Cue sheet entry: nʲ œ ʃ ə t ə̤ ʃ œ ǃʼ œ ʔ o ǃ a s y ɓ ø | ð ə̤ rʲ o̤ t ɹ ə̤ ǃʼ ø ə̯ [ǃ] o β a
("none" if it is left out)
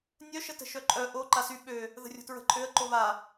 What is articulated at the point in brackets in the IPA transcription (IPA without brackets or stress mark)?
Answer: ǃ